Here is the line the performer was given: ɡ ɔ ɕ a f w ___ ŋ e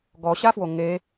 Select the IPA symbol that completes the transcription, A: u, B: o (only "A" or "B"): B